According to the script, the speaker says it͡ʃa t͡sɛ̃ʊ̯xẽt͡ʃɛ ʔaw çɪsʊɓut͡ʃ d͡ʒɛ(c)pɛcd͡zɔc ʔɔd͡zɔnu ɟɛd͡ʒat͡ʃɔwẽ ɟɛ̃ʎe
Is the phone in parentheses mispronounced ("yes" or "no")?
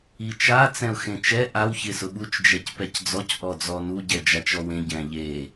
no